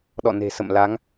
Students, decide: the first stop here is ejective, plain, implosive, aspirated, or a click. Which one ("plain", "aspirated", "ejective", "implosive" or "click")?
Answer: implosive